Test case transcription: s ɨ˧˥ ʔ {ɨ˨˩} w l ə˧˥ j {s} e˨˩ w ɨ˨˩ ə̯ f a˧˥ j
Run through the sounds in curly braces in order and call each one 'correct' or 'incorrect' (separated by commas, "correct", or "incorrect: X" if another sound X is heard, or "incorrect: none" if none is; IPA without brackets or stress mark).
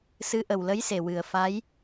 incorrect: ə˨˩, correct